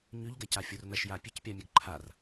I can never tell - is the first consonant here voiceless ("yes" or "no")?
no